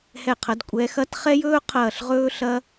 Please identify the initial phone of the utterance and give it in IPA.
h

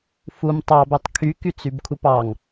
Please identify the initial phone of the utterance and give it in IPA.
f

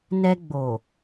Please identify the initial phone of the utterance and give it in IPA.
n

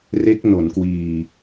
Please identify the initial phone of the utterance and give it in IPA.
r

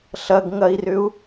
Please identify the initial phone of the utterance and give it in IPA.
ɬ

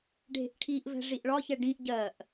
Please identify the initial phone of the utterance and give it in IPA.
ɖʱ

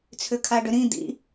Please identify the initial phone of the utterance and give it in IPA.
t͡sʰ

